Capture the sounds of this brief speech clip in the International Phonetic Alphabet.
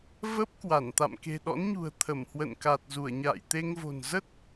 və˦˥p̚kwa˧˩n t̪a̰˧˨mke̤˨˩ɗɔ̰˧˥nɲṳ˨˩ə̯ t̪ʰə˧˩mhwə̰˧˨nka˨˩t̚zu˧˩ə̯ ɲa̰ː˧˨jt̪e˧ŋvo̤˨˩n zə˦˥t̚

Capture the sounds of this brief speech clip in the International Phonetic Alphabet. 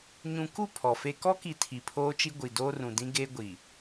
ɲũ˨ku˦˨ pʰɔ˨fe˦ kɔ˦ki˨ tʰi˨pʰoː˦t͡ʃi˦ ɡʷi˨doː˦rũ˨dĩ˦ ɡe˦ɡʷi˨

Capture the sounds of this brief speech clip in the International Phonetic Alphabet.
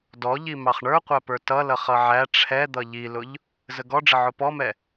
dɔʎi mɑχɳə˞qʷæpə˞ tʌlʌ χʌʕæ ʈ͡ʂʰɛd̪ʌ ʎilʊʎ | zəɡɔɖ͡ʐə ʕʊpɔmɛ

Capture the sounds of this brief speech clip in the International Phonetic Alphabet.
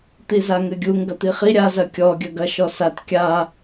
t̪izaŋɘɡʲuŋ ɡɐt̪iχi ɾʲa zɐkʲɔ ɡʲɐɡɐ ʃɔsat kʲa

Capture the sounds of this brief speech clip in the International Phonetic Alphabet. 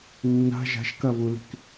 nːa̤ ʒa̤ʃkɐβuli̤k

